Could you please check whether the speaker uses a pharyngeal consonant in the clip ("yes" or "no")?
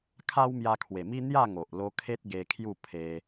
no